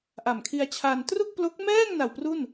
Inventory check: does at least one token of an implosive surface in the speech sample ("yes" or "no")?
no